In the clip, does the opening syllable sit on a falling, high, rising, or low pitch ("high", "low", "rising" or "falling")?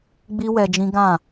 high